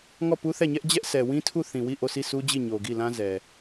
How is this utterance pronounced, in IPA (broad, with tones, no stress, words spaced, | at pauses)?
ŋɔ˦˨pu˦θɛ˦˨ɲɛ˦ʔ d͡ʑɛ˦ʔsɛ˨ wĩ˦tʰu˦˨ θĩ˨wi˦˨ ʔo˦˨si˦˨su˦d͡ʑi˦˨ ɲo˨ɡi˦˨lã˦zɛ˨